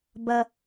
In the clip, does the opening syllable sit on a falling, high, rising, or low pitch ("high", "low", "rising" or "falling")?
low